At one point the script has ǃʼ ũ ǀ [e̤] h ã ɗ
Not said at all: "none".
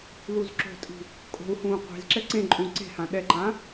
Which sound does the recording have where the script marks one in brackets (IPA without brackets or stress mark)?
e̤